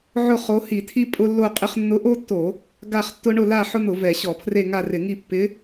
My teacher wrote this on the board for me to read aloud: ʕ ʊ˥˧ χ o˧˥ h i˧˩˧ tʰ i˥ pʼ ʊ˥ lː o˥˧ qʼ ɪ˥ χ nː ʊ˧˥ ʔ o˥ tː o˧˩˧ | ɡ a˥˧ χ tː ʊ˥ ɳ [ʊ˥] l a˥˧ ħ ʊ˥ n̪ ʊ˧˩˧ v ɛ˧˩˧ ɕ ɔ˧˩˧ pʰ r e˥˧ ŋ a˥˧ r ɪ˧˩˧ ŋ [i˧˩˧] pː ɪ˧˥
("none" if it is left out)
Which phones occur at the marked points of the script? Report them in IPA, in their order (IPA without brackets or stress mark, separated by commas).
ʊ˥˧, i˥˧